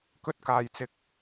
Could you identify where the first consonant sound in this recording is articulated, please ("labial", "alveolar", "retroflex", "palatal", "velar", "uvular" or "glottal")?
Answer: velar